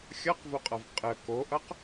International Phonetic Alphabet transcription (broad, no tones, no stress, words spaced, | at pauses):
xʲʌqvoqʼʌv qʼə koʔʌq